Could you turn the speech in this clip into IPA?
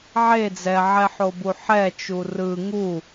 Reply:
ʕe d͡zɛʕɛħobu ħɛt͡ʃu rɯ ŋu

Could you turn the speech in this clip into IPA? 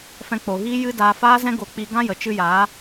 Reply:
fɛ̃˧k͡po˨ɣiː˦ jɨ˦daː˧ faː˦zɛ̃˦ɡo˧ k͡pi˧ ɡã˦jə˨t͡ʃɨ˧ jaː˨˦

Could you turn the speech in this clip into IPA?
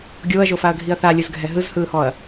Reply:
ɡʲoːɐ̯ʒofaɐ̯ɡʱiɐ̯ θalʲɯzɡʱɛ ɦɯzhɯːhɔɐ̯

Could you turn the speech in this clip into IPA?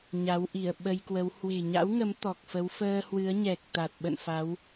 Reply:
ɲa˨˦wʔi˧˩ə̯ɓə˧jkwə˨˦w hwe̤˨˩ɲa̰˧˥wŋə˨˦m t̪ɔ˨˩k̚fə˨˦w fəː˧hwɨ˨˦ə̯ɲɛ˨˩k̚ t̪a˨˩t̚ɓə̰˧˨nfa˨˦w

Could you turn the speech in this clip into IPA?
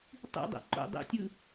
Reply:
tˤḭdˤɛ̰ ǃo̰ dˤḛtʲɯ

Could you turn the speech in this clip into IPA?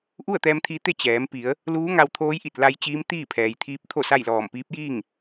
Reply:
ʔu˥˨ə̯t̪ɛː˧mt̪ʰi˧t̪e˥˨ t͡ɕɛː˩˧mpi˩˧ə̯ | luː˧˥ŋa˧wt̪ʰoː˧˥j ʔi˧˩t̚la˧j t͡ɕiː˧˥mt̪iː˥˨pʰɛː˩jt̪ʰiː˧˥p̚ t̪ʰo˥˨sa˥˨jlɔː˧˩m piː˧˥p̚jiː˥˨ŋ

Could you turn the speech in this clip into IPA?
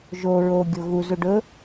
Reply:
ʒo ɹoɡʲo ɣuzu ɖɵ

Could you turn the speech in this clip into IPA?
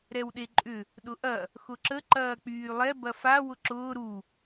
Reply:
ɾɛwɗeǃʼʏ | ɗʊʔɐ | xʊǁə ǃɐːk͡pyːlˠɛ bɐfa wʊǁʊː ɾu

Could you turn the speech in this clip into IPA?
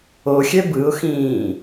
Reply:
oxʲɛ bɯʊ̯xĩː

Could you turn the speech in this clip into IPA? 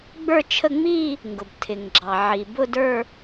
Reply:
ɡ͡bə˞˥˧t͡ʃʰə˥˧ ŋ͡mi˥˧ | ŋɡʊ˩btʰɪ˩ŋ ɡ͡ǁɑ˩ʕi˩ bʊ˥˧də˞˥˧

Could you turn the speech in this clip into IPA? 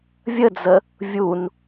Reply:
vʲəd͡zə | vʲun

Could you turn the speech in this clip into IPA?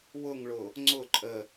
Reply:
wʊŋɭʊ | ŋ͡ǀʊ ǃʼə

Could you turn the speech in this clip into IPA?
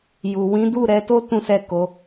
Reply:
ju˨wĩ˨˦du˦˨ ɾɛ˨˦to˦ tũ˦sɛ˦˨ko˨˦

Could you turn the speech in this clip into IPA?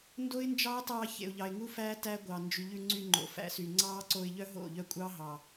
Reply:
ndo˦ɪ̯nd͡ʒɑː˦tɑː˧ çḛ˨ʊ̯ʎɑ˨ɪ̯ŋu˦fæː˦ tæ˦ɡʷɑ˨ nd͡ʒy˨ʎʉ˧ŋ͡ǀy˧ ŋ͡ǃo̰˨fæ̰˧sy˨ ŋ͡ǀɑː˦ǀo˧ɪ̯ʎœ˦ ɦo̰˦˨ ʎœ˦kʷʼɑ˦ ɦɑ˨

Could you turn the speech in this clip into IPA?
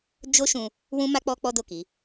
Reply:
d͡ʒo˦ʃũ˧ | wũ˦ma˦k͡pɔ˦ k͡pɔ˦do˦˨ ki˨˦

